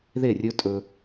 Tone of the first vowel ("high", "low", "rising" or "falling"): falling